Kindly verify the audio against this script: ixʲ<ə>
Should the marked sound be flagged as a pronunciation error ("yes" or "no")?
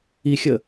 no